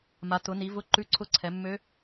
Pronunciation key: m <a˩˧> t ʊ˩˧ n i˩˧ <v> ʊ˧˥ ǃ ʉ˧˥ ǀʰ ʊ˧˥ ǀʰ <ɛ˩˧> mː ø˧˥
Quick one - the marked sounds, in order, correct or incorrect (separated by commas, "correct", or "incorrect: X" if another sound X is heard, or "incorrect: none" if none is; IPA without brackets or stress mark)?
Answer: correct, correct, correct